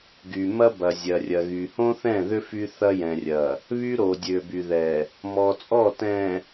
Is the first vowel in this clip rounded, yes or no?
yes